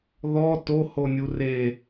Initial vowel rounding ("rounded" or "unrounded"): rounded